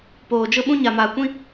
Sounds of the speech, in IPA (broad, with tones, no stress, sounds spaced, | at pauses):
p oː˨ d͡ʒ ʊ˦ ɓ ũ˦ ɲ a˨ m aː˨ kʷ ĩ˦